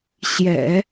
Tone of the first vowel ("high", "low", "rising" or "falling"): low